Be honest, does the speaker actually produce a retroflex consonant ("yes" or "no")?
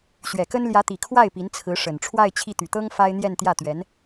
yes